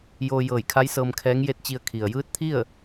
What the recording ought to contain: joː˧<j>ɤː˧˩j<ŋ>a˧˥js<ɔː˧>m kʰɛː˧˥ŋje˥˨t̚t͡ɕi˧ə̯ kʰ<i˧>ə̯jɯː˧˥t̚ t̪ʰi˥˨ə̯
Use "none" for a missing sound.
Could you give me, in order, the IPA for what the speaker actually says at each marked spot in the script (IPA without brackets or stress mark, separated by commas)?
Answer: j, kʰ, ɤː˧, i˩